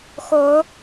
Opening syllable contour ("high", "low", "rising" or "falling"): rising